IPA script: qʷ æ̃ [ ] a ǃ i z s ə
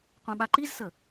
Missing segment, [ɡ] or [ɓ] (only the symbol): ɓ